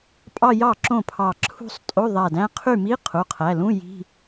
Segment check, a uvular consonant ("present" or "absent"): present